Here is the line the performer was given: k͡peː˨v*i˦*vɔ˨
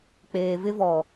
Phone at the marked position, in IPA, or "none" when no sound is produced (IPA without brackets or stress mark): ɪ˦